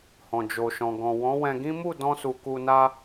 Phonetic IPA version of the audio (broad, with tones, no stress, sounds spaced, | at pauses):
h ɔ̃˨ d͡ʒ o˨ ʃ ɔ̃˨ ɡ ɔ̃˨ w ɔ̃˨˦ w ɛ̃˧ ɡ ĩ˦ m u˦˨ d ɔ̃˧ s u˨ k u˧ n a˦